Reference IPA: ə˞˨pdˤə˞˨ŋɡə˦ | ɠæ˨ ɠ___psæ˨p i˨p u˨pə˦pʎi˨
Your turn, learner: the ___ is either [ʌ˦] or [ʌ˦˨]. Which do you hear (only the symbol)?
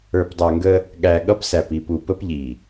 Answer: ʌ˦